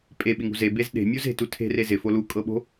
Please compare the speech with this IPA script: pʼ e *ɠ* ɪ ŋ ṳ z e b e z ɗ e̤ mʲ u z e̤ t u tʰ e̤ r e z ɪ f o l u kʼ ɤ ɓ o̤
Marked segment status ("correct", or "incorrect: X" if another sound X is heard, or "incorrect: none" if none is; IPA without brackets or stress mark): incorrect: ɓ